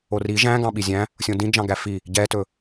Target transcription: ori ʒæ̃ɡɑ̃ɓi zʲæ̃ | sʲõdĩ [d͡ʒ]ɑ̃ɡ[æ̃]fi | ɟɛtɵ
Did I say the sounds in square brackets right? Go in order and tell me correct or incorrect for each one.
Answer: correct, incorrect: æ

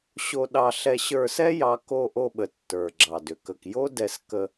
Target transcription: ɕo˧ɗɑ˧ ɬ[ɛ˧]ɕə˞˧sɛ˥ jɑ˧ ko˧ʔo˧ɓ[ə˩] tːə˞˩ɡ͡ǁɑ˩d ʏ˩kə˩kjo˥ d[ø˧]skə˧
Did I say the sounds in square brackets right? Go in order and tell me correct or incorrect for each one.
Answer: correct, correct, incorrect: ɛ˧

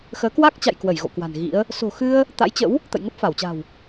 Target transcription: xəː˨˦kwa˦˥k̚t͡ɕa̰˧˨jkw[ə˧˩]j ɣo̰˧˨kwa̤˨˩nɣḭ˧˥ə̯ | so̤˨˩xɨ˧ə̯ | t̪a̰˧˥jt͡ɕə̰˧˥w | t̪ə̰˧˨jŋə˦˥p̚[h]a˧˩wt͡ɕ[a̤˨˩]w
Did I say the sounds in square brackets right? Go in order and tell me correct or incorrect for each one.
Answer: correct, incorrect: f, correct

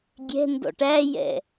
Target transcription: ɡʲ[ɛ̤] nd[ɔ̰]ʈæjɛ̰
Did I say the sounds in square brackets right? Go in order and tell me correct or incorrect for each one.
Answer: correct, correct

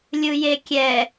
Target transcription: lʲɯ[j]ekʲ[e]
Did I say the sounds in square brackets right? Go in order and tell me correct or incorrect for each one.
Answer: correct, incorrect: ɛ

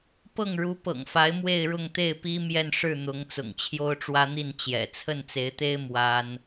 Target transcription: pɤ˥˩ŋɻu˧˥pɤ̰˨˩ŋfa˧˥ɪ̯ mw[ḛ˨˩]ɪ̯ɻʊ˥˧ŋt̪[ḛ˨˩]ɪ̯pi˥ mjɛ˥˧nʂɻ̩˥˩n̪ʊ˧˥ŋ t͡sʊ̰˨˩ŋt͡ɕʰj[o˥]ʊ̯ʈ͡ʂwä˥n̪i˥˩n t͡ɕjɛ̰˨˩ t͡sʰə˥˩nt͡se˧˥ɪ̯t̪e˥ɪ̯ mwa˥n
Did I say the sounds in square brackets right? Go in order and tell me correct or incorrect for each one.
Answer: incorrect: e˥˧, incorrect: e˥˩, correct

